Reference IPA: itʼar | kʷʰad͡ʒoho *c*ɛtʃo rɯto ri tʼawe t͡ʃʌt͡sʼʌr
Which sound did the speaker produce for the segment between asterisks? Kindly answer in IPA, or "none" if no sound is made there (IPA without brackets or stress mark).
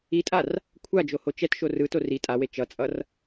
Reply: t͡ʃ